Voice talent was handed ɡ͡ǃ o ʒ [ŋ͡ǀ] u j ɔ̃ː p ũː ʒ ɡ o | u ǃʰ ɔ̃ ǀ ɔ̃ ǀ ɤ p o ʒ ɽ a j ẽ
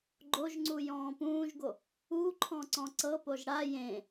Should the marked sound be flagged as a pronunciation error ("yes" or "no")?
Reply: no